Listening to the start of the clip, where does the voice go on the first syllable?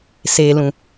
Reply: low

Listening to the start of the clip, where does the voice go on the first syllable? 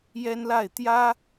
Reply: high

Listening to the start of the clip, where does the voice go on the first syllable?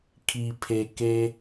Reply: low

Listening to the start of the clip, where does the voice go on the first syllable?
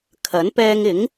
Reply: rising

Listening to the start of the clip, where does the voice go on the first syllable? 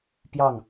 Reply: falling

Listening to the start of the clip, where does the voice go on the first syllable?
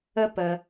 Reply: high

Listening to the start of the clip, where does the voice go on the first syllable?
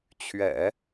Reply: low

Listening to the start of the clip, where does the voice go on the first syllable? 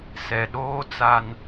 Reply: low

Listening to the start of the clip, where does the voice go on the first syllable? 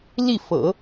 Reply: falling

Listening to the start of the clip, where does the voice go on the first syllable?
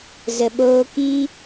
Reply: low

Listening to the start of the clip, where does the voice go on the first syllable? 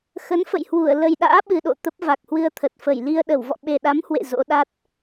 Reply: rising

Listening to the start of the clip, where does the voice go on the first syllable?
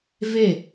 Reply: falling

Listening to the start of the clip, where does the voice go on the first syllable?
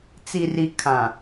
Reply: low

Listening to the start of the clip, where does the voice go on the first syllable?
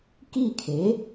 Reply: falling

